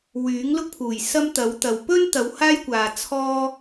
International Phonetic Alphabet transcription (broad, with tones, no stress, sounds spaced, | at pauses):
w yː˨˥ ŋ l ʊ˥ k̚ pʰ uː˨˩ j s ɐ˥ m t̪ ɐ˨˥ w t̪ ɐ˨ w p ɵ˥ n t̪ ɐ˨˧ w h aː˥ j kʷ aː˨ t͡sʰ ɔː˥